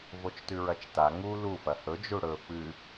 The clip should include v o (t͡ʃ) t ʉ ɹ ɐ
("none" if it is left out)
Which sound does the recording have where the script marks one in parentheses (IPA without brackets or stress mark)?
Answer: t͡ʃ